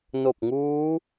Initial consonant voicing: voiced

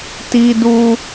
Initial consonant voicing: voiceless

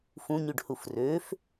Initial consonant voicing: voiceless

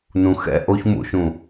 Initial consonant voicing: voiced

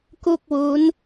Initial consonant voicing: voiceless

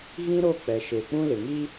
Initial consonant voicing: voiced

